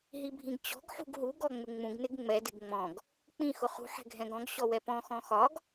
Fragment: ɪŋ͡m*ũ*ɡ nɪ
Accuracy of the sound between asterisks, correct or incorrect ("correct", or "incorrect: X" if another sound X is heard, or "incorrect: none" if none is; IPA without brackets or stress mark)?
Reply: correct